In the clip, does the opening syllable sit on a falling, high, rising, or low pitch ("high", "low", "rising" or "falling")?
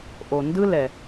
low